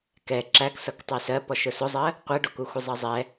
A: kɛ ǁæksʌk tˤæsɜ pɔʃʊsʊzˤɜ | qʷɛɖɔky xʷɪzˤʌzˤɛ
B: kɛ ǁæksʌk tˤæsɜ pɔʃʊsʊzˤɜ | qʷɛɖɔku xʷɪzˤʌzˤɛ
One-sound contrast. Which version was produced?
B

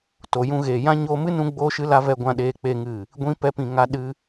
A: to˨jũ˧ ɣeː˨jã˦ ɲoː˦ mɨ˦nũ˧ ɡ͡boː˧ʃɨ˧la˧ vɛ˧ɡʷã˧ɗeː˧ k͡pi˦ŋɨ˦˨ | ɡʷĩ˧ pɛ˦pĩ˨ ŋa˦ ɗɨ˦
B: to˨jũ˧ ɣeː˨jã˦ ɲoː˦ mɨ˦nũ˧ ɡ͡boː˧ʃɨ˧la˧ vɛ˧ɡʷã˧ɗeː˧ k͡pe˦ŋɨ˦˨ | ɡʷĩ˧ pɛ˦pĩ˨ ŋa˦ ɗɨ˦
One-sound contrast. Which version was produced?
B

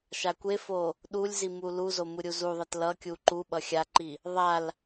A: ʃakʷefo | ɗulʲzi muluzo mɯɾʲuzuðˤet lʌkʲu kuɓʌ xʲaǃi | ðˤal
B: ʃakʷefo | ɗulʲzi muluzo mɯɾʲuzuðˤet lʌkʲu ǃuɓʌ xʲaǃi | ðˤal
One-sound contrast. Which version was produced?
B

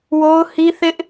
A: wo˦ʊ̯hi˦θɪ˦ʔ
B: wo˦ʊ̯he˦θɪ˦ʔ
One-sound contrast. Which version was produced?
A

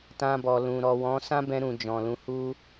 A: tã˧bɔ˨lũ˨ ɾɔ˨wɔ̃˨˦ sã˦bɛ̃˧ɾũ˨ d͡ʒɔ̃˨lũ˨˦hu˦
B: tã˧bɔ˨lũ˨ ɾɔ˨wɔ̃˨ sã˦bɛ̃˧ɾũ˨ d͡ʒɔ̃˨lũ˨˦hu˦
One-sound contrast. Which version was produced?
A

